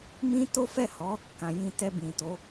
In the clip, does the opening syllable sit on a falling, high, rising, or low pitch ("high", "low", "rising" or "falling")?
high